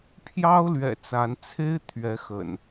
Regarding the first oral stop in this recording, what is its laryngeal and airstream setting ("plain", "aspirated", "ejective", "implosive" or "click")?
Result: aspirated